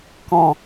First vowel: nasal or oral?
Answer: nasal